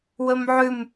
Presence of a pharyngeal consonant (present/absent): present